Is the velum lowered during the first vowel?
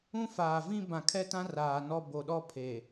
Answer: yes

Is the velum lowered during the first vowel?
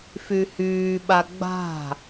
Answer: no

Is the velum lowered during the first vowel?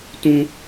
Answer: yes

